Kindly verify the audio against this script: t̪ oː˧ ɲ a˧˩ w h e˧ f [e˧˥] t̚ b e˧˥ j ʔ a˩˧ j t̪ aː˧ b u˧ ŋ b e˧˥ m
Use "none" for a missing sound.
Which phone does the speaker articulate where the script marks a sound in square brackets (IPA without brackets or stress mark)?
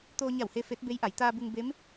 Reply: e˧˥